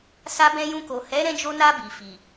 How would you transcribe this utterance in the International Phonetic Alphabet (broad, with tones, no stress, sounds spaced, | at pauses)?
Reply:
s a˧ b ɛ̃˧ j ũ˧ k o˨ h ɛ˨˦ ɾ ɛ̃˧ d͡ʒ o˧ n a˧ b i˨ f i˨